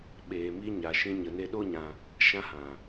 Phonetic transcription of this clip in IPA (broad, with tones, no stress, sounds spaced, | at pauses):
ɓ eː˨ m iː˧ ɲ a˨ ʃ ĩ˧ ɲ ə˨ n e˧ ɗ o˦ ɲ ã˧ | ʃ ã˧ h ã˨